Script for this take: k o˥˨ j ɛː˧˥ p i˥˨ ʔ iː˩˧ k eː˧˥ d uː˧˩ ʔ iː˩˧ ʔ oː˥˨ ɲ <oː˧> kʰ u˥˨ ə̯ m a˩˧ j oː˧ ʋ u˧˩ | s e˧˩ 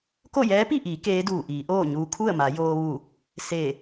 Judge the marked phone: incorrect: uː˧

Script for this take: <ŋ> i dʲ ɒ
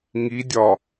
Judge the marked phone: correct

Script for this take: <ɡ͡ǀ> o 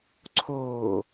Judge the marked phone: incorrect: ǀʰ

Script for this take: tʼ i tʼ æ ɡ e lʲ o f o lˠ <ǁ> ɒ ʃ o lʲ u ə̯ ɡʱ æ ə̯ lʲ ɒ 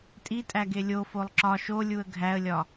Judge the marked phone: correct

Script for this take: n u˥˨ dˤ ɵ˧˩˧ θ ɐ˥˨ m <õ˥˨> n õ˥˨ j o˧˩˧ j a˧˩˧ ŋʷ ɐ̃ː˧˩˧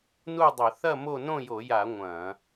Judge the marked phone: incorrect: o˥˨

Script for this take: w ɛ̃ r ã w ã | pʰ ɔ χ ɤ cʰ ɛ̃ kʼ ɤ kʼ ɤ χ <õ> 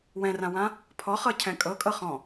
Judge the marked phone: incorrect: ɔ̃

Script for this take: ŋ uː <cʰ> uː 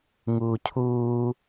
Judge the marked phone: correct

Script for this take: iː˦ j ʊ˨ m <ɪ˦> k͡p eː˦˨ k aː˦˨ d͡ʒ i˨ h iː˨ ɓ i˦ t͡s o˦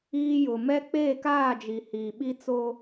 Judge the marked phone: incorrect: ɛ˦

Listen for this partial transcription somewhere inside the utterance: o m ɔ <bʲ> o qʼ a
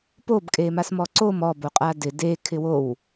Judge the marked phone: incorrect: b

